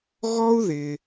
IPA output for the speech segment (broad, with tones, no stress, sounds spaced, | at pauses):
ɣ ɔ˥ u̯ ð ɪ˩